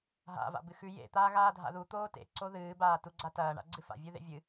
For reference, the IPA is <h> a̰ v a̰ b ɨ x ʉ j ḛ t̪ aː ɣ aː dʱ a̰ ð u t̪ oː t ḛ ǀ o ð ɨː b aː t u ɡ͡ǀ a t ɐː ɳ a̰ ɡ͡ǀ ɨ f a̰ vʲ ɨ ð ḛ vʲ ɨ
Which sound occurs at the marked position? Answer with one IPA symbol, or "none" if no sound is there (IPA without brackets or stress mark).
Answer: ɦ